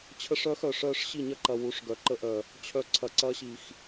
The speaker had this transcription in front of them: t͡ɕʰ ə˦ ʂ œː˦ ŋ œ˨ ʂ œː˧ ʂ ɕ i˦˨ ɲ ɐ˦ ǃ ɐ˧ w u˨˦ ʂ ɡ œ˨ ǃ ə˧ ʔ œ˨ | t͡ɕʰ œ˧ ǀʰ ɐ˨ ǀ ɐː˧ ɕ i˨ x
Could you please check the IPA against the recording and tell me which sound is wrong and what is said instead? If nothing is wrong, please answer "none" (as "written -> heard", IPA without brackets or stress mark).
ŋ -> x